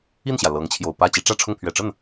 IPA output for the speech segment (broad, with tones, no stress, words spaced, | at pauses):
i˥˩nɕjä˩ lɤ˧˥ŋt͡ɕʰjo˨˩ʊ̯ pä˥˩ t͡ɕi˧˥ʈ͡ʂä˥˧ʈ͡ʂʰʊ˥˩ŋ pʰɥɛ˨˩ʈ͡ʂə˥˩n